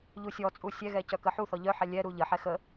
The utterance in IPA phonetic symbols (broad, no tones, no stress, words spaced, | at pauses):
ʎusʲɔt͡sʼu sʲɛɣɛ cœkəħuθɔ ʎœħɛ lʲɛɾu ʎəħɛ xə